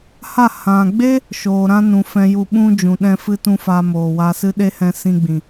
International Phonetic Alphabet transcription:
ha˦˨ hã˨ɡ͡be˦ | ʃoː˨ɾã˦nũ˨ fɛ̃˦ju˦˨ ɓũ˦ d͡ʒũ˨ɗɛ̃˦fɨ˦tũ˦ fa˧moː˨wa˧ sɨ˦ ɗe˦hɛ̃˧sĩ˧ɡ͡bĩ˨

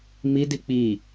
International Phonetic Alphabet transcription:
midi k͡pi

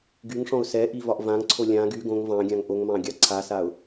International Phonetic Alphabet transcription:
ɡyŋʂɔ̃ʊ̯ sɛʔi vɒʔvãŋǀʰo lʲã ɡy ɡõŋ vɑ̃ɡʲãŋ ʔoŋmɑ̃ ɡʲɑǀʰasaʊ̯

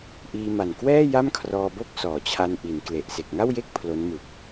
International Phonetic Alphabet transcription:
ʔiː˧ma˨˩nkwɛː˥˩ ja˥˩mkʰrɔː˧bo˥˩k̚sɔː˩˦ t͡ɕʰa˧nʔi˩˦nkle˨˩ʔ se˨˩k̚ŋa˥˩wje˥˩k̚ pʰlo˦˥nmɯ˨˩k̚

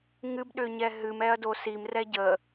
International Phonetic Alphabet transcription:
ŋɨbɗʏɲɛ ɦɨmɛɐ̯do simrɛ ɟə

